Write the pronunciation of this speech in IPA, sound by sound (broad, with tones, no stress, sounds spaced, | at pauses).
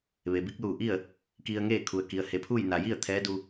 ʋ e˩ b i˧˥ k̚ l uː˧˩ ʔ i˥˨ ə̯ | k i˧ ə̯ ŋ eː˥˨ kʰ u˩ ə̯ k i˩ ə̯ h e˩˧ pʰ uː˥˨ j n a˩ j i˥˨ ə̯ t̪ʰ ɛː˧˥ d u˧